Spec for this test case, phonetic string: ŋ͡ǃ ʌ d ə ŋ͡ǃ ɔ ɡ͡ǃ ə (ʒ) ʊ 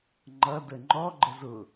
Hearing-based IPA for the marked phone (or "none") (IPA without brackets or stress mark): z